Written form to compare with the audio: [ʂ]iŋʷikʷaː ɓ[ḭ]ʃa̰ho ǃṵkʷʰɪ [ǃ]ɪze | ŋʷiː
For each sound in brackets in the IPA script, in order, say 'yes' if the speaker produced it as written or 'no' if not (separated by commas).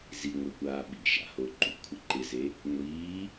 no, yes, yes